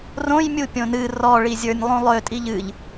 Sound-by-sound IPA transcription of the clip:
r õ j mʲ u pʲ õ n ɨ r ɔ ɭ i zʲ ə˞ nʲ lˠ ũ lˠ ø tʼ i ʎ ɨ ʎ

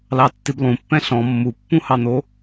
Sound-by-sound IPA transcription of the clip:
l ɑ tː i b lˠ ũ pː ɛ̃ ɬ ɔ̃ mː u pː ũ h ɑ n̪ o

